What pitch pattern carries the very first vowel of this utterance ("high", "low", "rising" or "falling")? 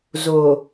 low